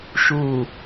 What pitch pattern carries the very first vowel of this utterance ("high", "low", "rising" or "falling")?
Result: low